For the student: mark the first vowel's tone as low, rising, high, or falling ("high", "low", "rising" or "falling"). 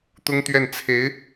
high